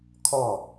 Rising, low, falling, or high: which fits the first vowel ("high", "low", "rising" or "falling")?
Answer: falling